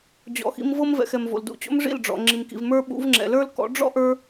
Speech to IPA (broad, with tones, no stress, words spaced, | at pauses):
d͡ʑɔ̰˨xḭ˧mvɤ˦mvɛ̰˨x ɛ˨mvo̰˨ldṵ˧t͡ɕo̰˦m ʐḭ˦˨lɖ͡ʐɔ̰˨ ŋ͡ǁi˨mkḭ˨vmə˞˦ ɓṵ˨˦v ŋ͡ǁɛ̰˨lə˞˦lkɔ̰˨˦ ɖ͡ʐɔ̰˦ʔə˞˧